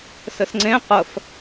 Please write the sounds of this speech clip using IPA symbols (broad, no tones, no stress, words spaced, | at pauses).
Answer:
sɘsŋ͡ǀẽ qəf